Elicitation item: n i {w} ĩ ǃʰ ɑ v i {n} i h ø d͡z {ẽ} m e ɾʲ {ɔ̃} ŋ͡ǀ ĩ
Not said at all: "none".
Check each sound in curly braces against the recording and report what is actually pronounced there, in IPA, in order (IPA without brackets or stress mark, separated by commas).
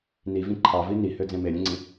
v, n, ẽ, õ